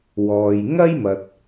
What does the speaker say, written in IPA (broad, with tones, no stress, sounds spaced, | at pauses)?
w ɔː˨ j ŋ ɐ˥ j m ɐ˨ t̚